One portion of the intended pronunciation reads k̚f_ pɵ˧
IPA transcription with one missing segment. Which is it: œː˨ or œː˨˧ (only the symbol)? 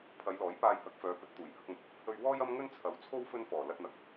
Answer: œː˨˧